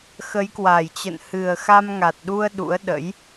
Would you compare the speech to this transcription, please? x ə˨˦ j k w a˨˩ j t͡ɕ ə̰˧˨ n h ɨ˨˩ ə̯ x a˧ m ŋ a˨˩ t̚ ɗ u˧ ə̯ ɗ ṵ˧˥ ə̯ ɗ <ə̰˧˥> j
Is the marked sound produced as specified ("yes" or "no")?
yes